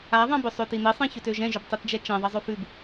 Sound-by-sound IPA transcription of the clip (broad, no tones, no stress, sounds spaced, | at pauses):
a ðˤ ã b ʏ sˤ ø t i n i sˤ ɛ̃ ç ʏ t ø ʒ ɛ̃ ʒ ʏ b tˤ i t d͡ʒ ɛ t͡ʃ ɛ̃ ðˤ ɐ zˤ ø f ʉ b